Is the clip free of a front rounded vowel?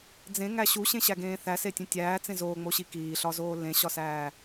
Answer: yes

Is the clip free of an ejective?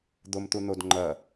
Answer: yes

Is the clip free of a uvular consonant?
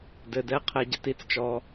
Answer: no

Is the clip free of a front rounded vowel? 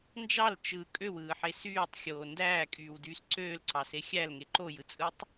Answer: no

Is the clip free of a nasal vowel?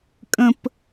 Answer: no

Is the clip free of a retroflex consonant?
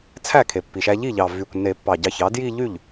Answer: yes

